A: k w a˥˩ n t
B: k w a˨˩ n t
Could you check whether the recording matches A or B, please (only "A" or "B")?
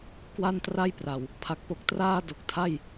A